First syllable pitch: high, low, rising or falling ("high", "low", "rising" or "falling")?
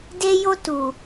high